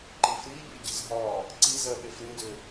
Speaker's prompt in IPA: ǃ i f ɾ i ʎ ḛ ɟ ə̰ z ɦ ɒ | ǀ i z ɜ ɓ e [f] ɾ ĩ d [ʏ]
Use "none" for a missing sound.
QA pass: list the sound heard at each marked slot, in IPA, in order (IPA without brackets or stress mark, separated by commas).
f, ʏ